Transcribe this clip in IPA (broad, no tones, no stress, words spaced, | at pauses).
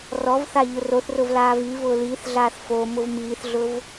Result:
rɔvθa ʎʊroθrʊv laːvivʊː liːθɮaːθ fo mʊvmiːθɮʊv